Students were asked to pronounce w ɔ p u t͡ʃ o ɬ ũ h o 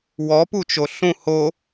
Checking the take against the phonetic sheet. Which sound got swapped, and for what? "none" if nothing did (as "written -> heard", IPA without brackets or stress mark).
none